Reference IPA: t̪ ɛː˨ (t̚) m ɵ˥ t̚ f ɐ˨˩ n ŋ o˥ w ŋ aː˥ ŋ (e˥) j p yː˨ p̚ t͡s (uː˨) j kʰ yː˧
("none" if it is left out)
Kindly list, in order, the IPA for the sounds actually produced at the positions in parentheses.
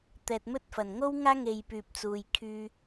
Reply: t̚, e˧, uː˨

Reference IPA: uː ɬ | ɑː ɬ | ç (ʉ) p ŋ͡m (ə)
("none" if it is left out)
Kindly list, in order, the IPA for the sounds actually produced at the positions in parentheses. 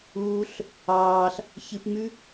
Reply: ɨ, ʉ

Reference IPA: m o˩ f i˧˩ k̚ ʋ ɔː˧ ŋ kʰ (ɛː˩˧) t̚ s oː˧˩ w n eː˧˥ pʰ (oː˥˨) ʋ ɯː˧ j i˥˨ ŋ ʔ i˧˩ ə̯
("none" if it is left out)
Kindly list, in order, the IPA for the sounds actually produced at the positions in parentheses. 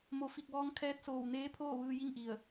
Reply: ɛː˧˥, oː˥˨

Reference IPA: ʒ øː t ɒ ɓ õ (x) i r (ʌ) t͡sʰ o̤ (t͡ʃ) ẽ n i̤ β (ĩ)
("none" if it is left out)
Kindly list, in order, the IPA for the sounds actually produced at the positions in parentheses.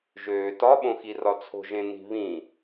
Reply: x, ɒ, ʒ, ĩ

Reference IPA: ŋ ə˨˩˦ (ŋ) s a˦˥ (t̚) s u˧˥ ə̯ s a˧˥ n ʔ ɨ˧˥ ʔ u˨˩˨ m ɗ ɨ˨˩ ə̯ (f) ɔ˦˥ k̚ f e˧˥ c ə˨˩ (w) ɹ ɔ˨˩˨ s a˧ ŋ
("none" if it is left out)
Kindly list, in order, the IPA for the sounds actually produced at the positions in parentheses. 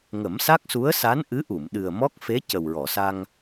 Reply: m, k̚, m, w

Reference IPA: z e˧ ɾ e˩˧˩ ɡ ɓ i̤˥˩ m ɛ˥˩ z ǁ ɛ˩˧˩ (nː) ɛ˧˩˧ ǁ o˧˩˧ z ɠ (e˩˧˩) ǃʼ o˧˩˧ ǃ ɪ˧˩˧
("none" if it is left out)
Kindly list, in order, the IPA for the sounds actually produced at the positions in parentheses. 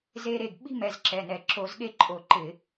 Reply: n, e˥˩

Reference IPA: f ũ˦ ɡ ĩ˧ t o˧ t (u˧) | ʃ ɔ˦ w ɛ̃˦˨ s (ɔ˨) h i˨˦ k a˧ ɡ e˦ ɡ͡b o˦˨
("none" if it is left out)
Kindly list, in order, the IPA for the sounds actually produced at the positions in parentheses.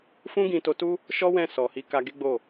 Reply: u˦, ɔ˨

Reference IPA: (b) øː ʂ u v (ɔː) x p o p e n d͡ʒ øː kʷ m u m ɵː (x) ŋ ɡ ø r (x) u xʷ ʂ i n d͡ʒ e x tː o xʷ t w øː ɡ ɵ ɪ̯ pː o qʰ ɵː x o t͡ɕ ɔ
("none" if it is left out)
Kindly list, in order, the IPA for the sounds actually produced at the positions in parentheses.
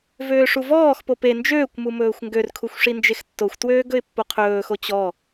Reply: v, ɔː, xʷ, kʰ

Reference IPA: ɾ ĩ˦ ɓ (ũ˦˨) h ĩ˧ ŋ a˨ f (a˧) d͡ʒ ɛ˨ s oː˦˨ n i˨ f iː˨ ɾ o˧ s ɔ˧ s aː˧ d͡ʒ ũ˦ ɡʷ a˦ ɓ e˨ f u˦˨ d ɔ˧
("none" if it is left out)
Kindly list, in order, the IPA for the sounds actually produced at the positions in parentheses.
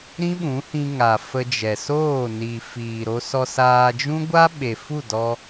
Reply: ũ˨˦, ə˧

